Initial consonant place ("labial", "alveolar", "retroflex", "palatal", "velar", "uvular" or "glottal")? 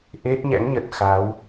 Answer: glottal